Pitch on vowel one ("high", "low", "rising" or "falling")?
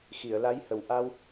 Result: low